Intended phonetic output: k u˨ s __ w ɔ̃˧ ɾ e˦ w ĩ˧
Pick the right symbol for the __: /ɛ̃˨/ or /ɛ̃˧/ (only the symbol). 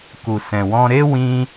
ɛ̃˨